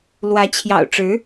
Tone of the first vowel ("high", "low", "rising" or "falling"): rising